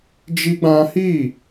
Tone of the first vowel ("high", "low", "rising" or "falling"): high